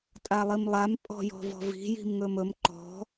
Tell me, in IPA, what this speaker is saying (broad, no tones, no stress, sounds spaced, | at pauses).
tʼ a lˠ i m lˠ a m pʼ ɔ̤ j ɔ̤ v ɔ̤ v i̤ j i̤ m ŋ ɵ m ɵ m ǃ ɔ̤